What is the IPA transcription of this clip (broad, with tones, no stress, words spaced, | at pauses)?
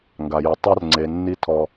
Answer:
ŋɡa˨ji˨ tˤa˦rŋ͡ǀe˨ nːi˦ tʰɔ˦